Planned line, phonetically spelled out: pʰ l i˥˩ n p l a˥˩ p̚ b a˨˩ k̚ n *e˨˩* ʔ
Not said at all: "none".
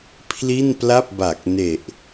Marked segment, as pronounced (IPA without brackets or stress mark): e˨˩